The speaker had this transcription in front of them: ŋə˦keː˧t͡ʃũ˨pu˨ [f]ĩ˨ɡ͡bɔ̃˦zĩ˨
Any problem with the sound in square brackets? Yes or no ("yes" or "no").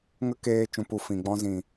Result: no